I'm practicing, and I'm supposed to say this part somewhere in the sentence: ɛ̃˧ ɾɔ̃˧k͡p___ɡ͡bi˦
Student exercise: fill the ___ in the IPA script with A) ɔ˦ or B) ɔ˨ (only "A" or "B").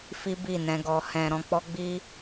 A